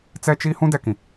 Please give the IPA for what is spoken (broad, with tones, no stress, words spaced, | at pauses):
t͡sɛ˦t͡ʃi˦ hũ˦dɛ˨kĩ˨